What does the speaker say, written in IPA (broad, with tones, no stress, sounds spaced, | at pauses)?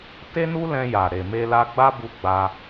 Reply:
t e˦ n u˦ l ɛ̃˧ j a˨ ɾ e˨ m e˧ l a˧ ɡ͡b a˦ b u˧ ɡ͡b a˧